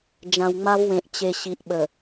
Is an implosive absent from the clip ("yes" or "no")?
no